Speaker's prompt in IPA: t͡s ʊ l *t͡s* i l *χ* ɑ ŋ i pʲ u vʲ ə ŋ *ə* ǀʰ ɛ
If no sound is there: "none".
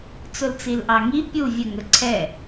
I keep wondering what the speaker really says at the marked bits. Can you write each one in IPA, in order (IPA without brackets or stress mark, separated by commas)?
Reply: t͡s, ʔ, ə